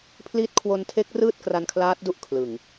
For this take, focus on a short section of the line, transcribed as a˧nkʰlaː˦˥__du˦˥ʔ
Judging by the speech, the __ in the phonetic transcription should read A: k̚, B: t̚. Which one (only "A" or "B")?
B